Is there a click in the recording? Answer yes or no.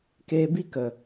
no